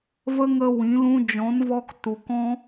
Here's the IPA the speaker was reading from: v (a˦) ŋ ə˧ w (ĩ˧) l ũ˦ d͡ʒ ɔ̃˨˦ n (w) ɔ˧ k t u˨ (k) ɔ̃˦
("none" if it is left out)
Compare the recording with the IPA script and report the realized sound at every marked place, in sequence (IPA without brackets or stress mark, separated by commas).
ə˦, ĩ˨˦, v, k